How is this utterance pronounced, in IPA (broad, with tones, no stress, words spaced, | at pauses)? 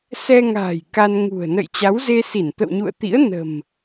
sɛ˧ŋa̤ː˨˩j ka˧nŋṳ˨˩ə̯ nə̰˧˨jt͡ɕa˨˦wze˧ si˧˩nt̪ə̰˧˨wɲṵ˧˨ə̯t̪ḭ˧˥ə̯ nə̤˨˩m